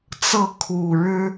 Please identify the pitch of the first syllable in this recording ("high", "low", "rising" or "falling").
falling